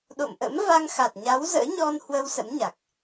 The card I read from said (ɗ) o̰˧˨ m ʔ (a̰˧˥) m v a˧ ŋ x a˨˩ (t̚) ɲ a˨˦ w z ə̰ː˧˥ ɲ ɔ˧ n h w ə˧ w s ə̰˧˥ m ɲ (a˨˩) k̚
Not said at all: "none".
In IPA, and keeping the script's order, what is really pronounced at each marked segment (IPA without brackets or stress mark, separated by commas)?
ɗ, ə̰˧˥, t̚, a˨˩